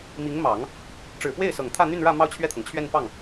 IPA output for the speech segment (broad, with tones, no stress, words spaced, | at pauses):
mi˧˥ŋmɑ˨˩˦ŋ | ʈ͡ʂɻ̩˨˩pwe˥˩ɪ̯ sɤ˨˩ŋt̪ʰä˥˧n̪y˥˧nɻä˥˧ mɑ˥˧ʊ̯t͡ɕʰɥɛ˥˩t̪ʰɤ˩ŋt͡ɕʰɥɛ˥˧n pɑ˥˩ŋ